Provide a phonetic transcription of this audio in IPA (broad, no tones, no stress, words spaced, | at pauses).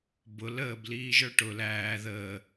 bʊl əːbliːʒə˞ ʈʊ læː ðəː